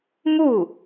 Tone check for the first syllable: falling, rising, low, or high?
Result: falling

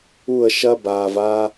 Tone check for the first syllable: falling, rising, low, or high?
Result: falling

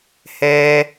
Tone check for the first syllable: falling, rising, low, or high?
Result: low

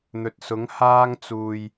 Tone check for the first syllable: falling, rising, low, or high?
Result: low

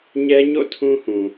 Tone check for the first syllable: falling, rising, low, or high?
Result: high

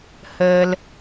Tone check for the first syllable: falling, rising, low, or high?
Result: low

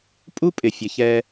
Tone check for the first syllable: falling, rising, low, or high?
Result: high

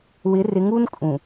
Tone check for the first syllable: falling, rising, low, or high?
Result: rising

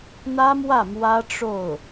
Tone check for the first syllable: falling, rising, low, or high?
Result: high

